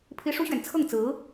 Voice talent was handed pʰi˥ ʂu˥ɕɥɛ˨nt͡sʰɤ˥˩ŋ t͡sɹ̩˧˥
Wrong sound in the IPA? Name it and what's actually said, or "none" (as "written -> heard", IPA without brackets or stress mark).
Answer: none